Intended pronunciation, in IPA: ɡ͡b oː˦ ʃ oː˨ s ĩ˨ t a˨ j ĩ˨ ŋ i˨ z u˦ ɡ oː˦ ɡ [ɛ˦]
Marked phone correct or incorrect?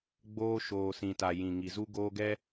correct